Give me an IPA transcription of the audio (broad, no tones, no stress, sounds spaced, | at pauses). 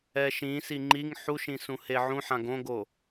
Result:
ɛ ʃ ĩ s i ŋ͡ǃ i ŋ ħ u ʃ ĩ s ũ h e ʕ ũ ħ ã ɡ õ ɡ o